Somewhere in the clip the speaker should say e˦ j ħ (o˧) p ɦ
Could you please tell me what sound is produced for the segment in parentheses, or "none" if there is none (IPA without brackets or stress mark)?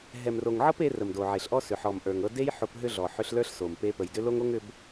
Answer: o˧